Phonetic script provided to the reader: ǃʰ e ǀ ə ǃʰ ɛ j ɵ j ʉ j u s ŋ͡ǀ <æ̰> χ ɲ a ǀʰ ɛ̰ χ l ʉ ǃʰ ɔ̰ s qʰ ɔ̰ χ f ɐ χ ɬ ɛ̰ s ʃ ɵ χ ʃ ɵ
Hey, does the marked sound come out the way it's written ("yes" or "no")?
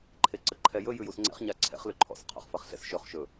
no